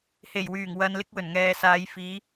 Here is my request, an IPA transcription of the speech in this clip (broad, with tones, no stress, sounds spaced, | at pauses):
h e˨˩ j w yː˨˩ ŋ w ɐ˧ n l ɪ˥ k̚ w ɵ˨˩ n ŋ ɛː˨ s aː˨˧ j f iː˨˧